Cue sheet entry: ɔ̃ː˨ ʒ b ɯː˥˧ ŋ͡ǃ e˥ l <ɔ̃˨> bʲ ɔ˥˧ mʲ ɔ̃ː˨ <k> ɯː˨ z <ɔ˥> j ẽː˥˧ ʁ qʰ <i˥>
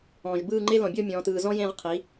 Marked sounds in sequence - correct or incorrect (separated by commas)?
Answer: correct, incorrect, incorrect, incorrect